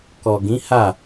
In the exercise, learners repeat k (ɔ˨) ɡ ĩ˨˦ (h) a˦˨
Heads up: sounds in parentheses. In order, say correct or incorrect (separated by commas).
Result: correct, correct